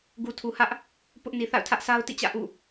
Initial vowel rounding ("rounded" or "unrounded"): rounded